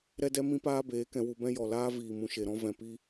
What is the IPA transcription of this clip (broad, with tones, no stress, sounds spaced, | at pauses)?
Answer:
ɾ ɛ˦ d ɛ˦ m ĩ˧ p aː˧ b eː˨˦ k ɛ̃˧ w u˧ b ɛ̃˦ j ɔ˨ l aː˦ v iː˨ m ũ˨ ʃ e˨ ɾ ɔ̃˧ v ɛ̃˨ p i˧